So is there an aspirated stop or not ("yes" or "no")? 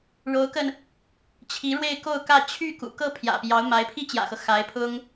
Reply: yes